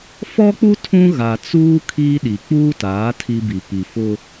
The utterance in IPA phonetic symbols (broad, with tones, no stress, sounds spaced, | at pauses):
f ɔ˦ k͡p u˦ tʰ ũ˦ ɣ a˨ t͡s uː˦ kʰ iː˦ ɗ i˨ k͡p uː˦ t aː˨˦ tʰ i˦ b i˨ p i˨ f ʊ˦